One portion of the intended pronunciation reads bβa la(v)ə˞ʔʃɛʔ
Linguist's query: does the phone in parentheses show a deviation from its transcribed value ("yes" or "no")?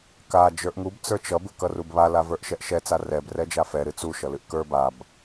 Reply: no